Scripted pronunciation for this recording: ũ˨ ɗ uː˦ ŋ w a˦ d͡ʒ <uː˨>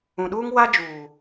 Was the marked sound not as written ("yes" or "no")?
no